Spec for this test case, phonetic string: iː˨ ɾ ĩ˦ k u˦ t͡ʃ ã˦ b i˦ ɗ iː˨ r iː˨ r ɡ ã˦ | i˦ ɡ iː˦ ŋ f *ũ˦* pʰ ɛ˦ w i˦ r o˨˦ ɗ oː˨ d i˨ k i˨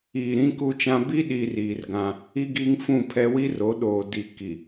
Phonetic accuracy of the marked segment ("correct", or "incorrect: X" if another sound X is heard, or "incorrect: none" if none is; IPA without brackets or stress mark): incorrect: ũ˦˨